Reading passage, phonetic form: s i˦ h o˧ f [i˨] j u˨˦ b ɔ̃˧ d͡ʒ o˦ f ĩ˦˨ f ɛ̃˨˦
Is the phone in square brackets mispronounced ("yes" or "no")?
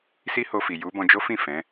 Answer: no